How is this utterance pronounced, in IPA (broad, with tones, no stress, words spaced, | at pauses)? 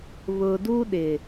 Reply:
βʊ˨du˦ɗɪ˨